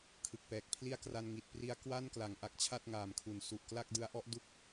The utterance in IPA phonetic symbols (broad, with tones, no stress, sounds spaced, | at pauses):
kʰ ɯ˨˩ k̚ p ɛː˨˩ k̚ pʰ l i˥˩ a̯ k r a˧ n ŋ i˨˩ t̚ p r i˦˥ a̯ k w a˥˩ n k l a˩˦ ŋ ʔ a˨˩ k̚ t͡ɕʰ a˥˩ t̚ ŋ aː˨˩ m kʰ u˨˩ n s u˨˩ ʔ k l a˥˩ k̚ d ɯ˦˥ a̯ ʔ ɔ˦˥ ʔ d u˥˩ k̚